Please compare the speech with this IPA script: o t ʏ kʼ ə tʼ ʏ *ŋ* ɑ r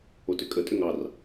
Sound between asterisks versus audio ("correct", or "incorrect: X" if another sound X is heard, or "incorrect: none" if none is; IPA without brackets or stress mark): correct